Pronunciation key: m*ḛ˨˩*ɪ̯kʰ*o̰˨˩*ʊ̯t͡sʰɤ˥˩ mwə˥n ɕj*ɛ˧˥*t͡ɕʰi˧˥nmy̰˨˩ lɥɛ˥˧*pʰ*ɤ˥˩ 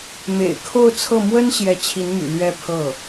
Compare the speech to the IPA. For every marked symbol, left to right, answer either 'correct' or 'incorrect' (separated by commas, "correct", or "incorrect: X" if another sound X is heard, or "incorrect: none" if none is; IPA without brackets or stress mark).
correct, incorrect: o˥˧, correct, correct